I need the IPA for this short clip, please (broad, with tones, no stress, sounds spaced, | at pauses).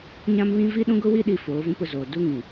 ɲ ã˦ m β ĩ˦ v i˦ ɗ ũ˦ ɡ ʊ˦ w i˦ ɗ i˨ f oː˨˦ v ũ˦ p ʊ˦˨ z oː˨ d u˦ ŋ ĩ˨